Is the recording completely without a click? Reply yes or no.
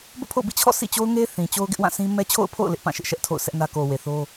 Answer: yes